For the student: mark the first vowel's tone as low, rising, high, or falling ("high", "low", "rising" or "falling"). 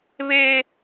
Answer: high